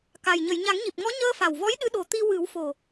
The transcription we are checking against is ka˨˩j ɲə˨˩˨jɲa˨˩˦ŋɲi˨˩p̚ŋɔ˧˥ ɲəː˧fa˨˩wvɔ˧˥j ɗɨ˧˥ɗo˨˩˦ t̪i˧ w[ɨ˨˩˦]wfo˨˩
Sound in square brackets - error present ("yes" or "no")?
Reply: no